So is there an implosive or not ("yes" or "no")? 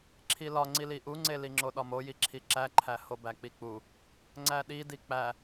yes